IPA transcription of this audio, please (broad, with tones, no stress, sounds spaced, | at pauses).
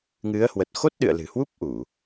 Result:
ŋ ɨ˨˦ ə̯ h w ə˨˩ t̚ x o˦˥ t̚ ɗ ɨ̰˧˨ ə̯ l ɨ̤˨˩ h w u˦˥ p̚ ʔ u˧˩˨